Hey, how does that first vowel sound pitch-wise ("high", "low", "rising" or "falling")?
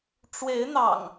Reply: rising